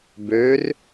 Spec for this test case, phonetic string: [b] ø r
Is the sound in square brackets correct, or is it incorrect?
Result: correct